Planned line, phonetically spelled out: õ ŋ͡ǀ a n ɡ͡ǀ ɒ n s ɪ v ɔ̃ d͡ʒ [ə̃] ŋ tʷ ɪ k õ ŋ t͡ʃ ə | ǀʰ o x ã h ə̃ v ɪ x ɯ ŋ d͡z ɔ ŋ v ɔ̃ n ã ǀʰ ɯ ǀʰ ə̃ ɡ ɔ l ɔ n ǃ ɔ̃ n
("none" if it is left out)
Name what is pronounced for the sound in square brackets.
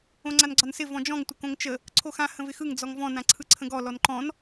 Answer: ɔ̃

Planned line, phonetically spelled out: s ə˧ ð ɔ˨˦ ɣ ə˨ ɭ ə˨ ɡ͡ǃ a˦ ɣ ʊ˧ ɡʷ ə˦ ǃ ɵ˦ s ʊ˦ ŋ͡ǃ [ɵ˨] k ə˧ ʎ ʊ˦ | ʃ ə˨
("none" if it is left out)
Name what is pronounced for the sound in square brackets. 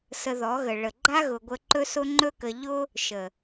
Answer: ɵ˦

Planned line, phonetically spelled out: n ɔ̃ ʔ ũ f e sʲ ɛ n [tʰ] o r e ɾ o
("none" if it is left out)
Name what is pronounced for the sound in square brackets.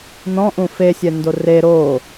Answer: d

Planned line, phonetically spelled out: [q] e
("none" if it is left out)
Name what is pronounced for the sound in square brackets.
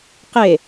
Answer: q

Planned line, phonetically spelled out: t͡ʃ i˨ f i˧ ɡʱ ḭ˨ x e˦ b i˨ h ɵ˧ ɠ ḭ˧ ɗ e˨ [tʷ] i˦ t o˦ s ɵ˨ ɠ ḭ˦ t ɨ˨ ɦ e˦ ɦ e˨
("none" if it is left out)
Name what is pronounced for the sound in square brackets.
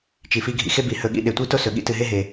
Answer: tʷ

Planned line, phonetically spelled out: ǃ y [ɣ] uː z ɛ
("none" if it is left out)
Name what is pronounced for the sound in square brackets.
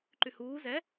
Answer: h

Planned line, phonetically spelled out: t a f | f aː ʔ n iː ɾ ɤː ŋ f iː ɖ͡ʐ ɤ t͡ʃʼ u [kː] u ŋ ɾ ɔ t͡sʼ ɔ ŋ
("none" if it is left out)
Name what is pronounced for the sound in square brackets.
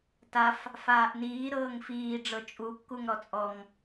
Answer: kː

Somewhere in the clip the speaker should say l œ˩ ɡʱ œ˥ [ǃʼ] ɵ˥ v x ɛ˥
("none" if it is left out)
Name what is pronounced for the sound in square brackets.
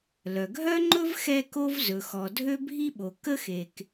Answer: ŋ͡ǃ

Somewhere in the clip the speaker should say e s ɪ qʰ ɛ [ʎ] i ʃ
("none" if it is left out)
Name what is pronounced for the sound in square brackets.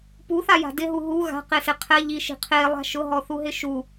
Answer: ʎ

